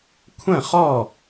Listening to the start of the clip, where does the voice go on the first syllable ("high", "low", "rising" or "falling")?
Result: falling